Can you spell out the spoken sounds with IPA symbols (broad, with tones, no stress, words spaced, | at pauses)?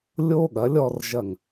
lʲo˥ɠɐ˩˥lʲɔ˧r ʒɐ˥˩ŋ